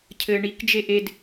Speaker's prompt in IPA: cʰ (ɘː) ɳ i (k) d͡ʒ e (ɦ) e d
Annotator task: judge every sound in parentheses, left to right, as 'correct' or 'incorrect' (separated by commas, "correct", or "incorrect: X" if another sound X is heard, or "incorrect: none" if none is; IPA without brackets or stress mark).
correct, correct, incorrect: ʔ